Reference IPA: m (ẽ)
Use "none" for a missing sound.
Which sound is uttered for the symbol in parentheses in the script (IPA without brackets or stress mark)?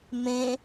ẽ